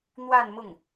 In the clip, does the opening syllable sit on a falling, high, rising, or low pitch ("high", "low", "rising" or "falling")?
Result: falling